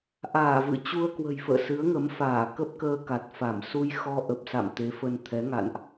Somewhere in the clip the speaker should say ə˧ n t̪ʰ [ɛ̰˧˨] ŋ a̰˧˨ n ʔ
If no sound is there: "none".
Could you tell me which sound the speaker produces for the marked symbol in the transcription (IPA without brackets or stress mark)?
ɛ˨˦